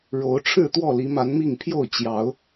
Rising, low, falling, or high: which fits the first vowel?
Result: rising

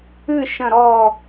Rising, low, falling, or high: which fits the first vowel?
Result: falling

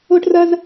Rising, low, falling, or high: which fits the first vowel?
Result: high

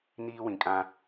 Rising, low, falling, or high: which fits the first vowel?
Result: high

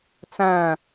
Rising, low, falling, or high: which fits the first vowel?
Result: falling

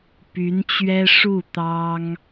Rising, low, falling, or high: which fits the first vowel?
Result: rising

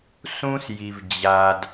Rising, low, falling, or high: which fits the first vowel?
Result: high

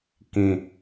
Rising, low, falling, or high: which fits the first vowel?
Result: low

